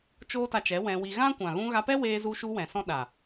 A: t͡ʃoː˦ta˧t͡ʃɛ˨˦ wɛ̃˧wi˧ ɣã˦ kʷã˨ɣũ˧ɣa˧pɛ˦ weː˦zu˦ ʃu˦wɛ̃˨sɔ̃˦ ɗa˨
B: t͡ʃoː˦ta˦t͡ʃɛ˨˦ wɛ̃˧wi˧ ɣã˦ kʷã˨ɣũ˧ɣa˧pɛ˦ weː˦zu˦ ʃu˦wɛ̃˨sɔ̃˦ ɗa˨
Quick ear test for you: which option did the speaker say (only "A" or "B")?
A